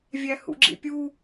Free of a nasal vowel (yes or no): yes